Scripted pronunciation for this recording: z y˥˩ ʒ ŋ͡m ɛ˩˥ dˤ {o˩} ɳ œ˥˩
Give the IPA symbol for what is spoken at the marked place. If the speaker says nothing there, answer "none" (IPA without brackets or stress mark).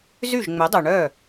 o˩